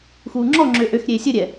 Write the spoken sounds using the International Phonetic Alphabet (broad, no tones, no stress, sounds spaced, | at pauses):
x uː ŋ͡ǁ ɔ ŋ͡ǁ ø ʔ ø x ɾʲ eː sʲ ə ɾʲ ɛ